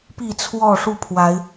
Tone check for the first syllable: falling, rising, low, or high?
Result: falling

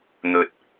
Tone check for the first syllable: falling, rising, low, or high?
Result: low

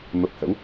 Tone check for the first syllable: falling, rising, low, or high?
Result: low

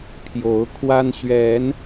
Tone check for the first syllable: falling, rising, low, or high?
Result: rising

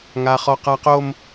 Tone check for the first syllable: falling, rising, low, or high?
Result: high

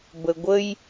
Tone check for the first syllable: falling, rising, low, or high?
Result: low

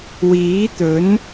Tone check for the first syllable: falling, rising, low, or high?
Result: rising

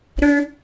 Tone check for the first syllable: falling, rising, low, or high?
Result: high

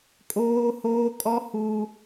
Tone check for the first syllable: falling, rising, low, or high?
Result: high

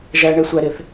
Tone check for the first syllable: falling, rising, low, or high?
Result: low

